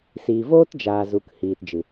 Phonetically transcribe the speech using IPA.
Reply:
siː˨voː˦td͡ʒaː˨ zu˨˦khiː˨td͡ʒɨ˨

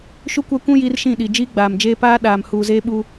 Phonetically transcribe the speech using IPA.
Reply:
ʃu˦kʷa˦kʷũ˦ ji˦rʃĩ˦˨ɗi˨ d͡ʒiː˦ɡ͡baː˨md͡ʒeː˦ paː˦ ɗaː˨mhuː˨zeː˦ɓu˦

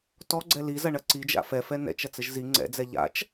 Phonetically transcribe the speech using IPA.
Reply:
tɔ ɡ͡ǀɛli zɐɳɐǀid͡ʒa̰ fɛfɛ nɛ̰t͡ʃɐt͡sɘʒ zi ŋ͡ǀɛ̰d͡zɛ ʎa̰t͡ʃ

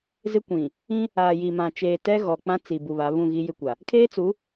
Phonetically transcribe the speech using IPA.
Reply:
zɪ˦kʷĩ˨ | ĩ˦ | aː˨ji˨mã˨t͡ʃeː˨ tɛ˦ɣɔ˨ k͡pã˦t͡si˨ bu˨βa˨˦βũ˦˨ ɣi˦jɪ˦kʷa˨ | kʰeː˦t͡su˨˦

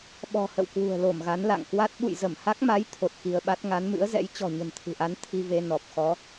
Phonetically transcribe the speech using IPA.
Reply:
ɓɔ̤˨˩hə̰˧˨w kwṳ˨˩ə̯lo˧˩mɣa˨˦n la̰˧˨ŋkwa˦˥t̚ ɓṵ˧˨jzə˧˩mha˦˥k̚ma˨˦j t̪ʰo˨˩t̚xi˧ə̯ɓa˦˥t̚ ŋa˨˦nmɨ̰˧˥ə̯zɛ̰˧˥j t͡ɕɔ̤˨˩ɲə̤˨˩nt̪ʰɨ̤˨˩ʔa˨˦n t̪ʰi˧ve˧ nɔ˨˩p̚ xɔ˨˦

